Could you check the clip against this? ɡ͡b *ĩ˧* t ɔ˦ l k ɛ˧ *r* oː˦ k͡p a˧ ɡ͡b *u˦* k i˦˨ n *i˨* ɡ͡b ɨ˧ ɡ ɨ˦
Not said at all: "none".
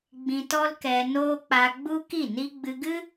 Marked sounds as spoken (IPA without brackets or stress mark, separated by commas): ĩ˧, n, u˦, i˦